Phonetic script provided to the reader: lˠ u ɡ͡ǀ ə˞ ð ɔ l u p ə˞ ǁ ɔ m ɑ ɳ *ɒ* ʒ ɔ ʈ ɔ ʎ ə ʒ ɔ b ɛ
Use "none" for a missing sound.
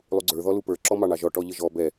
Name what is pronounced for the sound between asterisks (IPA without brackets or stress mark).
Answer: ɑ